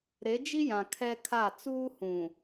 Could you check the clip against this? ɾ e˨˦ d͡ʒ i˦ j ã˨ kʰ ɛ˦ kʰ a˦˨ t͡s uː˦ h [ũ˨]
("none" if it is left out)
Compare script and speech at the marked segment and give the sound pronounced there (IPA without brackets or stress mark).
ũ˨